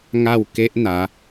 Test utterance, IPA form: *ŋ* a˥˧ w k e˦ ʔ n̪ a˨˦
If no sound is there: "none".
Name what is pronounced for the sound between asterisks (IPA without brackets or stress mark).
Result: ŋ